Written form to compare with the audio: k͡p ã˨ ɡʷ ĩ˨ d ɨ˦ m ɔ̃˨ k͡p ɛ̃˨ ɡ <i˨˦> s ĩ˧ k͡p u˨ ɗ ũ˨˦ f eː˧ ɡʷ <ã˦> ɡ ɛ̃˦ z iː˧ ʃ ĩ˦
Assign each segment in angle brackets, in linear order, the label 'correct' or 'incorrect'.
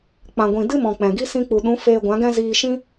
incorrect: i˦, incorrect: ã˨˦

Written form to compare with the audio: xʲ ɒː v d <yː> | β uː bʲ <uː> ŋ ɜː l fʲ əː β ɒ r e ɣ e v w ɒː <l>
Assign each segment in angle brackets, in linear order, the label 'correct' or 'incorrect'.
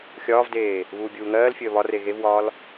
incorrect: eː, correct, correct

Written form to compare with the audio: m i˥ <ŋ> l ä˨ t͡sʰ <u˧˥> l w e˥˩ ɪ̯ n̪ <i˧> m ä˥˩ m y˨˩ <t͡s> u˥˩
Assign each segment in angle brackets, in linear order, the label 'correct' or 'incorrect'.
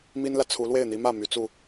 incorrect: n, correct, incorrect: i˧˥, correct

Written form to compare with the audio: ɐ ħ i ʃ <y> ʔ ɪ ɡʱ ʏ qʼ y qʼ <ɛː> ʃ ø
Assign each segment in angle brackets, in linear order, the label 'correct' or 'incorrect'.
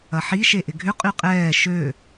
incorrect: e, correct

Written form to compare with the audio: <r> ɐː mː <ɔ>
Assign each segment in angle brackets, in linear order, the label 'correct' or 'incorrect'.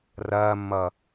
correct, incorrect: ʌ

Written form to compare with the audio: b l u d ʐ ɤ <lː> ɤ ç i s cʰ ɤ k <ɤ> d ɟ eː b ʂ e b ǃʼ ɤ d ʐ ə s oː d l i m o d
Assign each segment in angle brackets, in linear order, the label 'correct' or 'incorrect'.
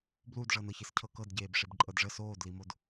incorrect: n, correct

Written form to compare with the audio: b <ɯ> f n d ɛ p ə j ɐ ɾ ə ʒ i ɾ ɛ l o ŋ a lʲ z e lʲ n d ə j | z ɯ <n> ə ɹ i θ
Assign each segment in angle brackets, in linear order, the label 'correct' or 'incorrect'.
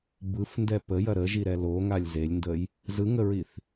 correct, incorrect: ŋ

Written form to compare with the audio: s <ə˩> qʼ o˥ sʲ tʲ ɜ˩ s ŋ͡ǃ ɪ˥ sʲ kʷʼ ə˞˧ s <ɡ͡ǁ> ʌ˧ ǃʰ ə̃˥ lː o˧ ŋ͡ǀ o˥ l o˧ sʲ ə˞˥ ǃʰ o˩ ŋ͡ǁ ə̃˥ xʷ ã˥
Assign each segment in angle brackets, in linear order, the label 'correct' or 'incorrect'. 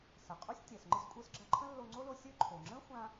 correct, correct

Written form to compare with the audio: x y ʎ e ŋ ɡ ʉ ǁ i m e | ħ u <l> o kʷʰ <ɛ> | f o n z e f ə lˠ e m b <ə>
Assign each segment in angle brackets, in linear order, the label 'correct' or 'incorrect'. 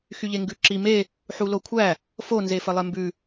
correct, incorrect: æ, incorrect: ʉ

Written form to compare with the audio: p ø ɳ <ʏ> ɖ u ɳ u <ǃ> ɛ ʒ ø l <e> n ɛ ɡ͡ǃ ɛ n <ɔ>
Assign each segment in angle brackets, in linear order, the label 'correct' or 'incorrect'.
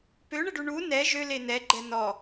incorrect: ə, incorrect: n, correct, correct

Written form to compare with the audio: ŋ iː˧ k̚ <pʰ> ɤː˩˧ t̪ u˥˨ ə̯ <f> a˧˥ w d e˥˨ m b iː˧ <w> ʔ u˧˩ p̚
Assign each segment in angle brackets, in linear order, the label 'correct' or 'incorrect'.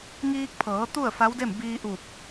correct, correct, incorrect: none

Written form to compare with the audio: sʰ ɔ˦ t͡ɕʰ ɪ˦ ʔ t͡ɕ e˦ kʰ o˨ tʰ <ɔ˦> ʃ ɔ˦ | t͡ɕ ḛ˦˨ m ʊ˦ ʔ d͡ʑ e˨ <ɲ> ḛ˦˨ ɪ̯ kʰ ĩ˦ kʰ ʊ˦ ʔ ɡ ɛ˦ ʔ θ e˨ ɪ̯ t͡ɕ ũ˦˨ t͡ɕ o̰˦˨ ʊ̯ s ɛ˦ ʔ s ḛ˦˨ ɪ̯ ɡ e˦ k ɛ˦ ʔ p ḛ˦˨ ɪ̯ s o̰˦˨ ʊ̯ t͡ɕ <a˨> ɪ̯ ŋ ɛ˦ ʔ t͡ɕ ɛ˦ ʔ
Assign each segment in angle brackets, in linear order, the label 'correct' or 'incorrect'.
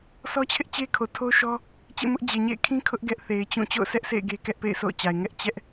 incorrect: o˦, correct, correct

